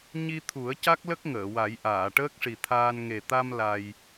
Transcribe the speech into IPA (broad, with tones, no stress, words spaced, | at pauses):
ɲi˧t̪ʰu˨˩˦ə̯ ca˦˥k̚lə˦˥k̚ŋəː˨˩˨wa˨˩˦j ʔaː˨˩˨ʈəː˦˥k̚ʂi˨˩t̪ʰaː˧n ŋe˨˩t̪a˧m la˧j